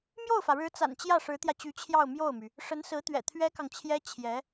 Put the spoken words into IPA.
m j o˥˩ ʊ̯ f ä˩ ɻ ɻ̩˧˥ t͡s a̰˨˩ n t͡ɕ j ä˥˩ ʂ ɻ̩˧˥ t̪ j ä˧ t͡ɕ y˧˥ t͡ɕʰ j ɑ˥˧ ʊ̯ m j o˥˩ ʊ̯ m y˩ | ʂ ə˧˥ n s ɹ̩˧˥ t̪ ɥ ɛ̰˨˩ t̪ʰ ɥ ɛ˥ k ɑ˨ ŋ t͡ɕʰ j ɛ˥ t͡ɕʰ j ɛ˧˥

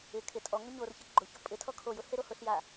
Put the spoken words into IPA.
ɪ kʰ ɪ tʼ ɔ ŋ o ɲ o r ç ɪ ɡ͡ǃ ʊ ç ʊ pʼ ɪ tʰ ɔ kʰ o j ʊ h e ɾ o h ʊ ɬ j a

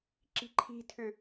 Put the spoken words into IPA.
ǁ i̤ ǃʰ i̤ tʰ ʏ

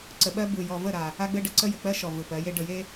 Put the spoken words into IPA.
ǀ ə˨ ɓ ɜ˦ b ɯ˨ j ɔ˨ v ə˦˨ ɾ a˨ | a˦ ɡ͡b ɘ˦ ɖ ə˨ ǀ ə˦ j ɘ˨ k͡p ɜ˦ ʃ ɔ˨ v ɯ˨ p ɜ˨˦ j e˦ ɖ ə˨ j e˦

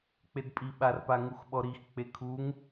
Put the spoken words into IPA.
k͡p e d pʼ i ɓ a r p a ŋ u x ɓ ɔ ɾ i x k͡p e kʰ u ŋ

